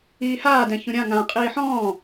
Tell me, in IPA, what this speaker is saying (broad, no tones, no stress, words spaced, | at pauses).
iːhaːdɛ̃ çũɾʲã ŋã qʼiːħɔ̃ː